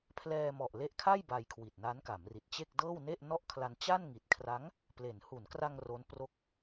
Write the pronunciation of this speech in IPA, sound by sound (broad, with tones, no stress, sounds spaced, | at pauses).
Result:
pʰ l ɛː˧ m ɔ˨˩ ʔ l e˦˥ ʔ kʰ a˥˩ j b a˧ j kʰ w i˨˩ t̚ n a˦˥ n k a˩˦ m r i˨˩ t̚ t͡ɕ e˥˩ k̚ d ɤː˥˩ w n e˥˩ ʔ n ɔ˥˩ ʔ kʰ l a˧ n t͡ɕ a˥˩ n ŋ i˨˩ t̚ kʰ r a˦˥ ŋ | p l e˩˦ n h u˩˦ n k r a˧ ŋ r o˦˥ n p r o˥˩ k̚